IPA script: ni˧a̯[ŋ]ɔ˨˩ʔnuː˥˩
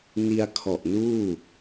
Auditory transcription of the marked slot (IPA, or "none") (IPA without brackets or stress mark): kʰ